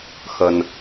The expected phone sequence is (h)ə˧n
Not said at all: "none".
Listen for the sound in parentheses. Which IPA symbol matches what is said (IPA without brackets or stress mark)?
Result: x